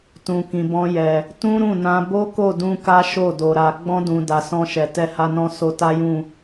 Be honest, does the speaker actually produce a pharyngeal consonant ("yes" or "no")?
no